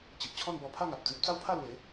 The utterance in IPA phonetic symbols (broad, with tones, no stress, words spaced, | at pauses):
t͡ɕi˨ʔ t͡ɕʰɔ̃˥˧nbɔ˧pʰa˥˧ ŋa˨p̚d͡zĩ˦p̚ t͡sa˦wpʰa˥˧lwe˨˦